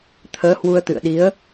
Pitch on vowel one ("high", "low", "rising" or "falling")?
rising